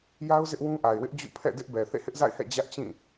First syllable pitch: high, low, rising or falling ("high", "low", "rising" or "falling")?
high